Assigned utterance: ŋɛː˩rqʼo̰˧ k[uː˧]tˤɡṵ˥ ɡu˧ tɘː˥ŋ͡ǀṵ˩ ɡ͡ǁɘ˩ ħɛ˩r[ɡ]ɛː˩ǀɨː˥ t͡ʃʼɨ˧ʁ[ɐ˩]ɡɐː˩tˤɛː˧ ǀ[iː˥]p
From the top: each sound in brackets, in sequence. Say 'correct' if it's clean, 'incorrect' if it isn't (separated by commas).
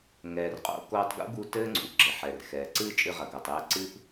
incorrect, incorrect, correct, incorrect